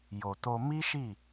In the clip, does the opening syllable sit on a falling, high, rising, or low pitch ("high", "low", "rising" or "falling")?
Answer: low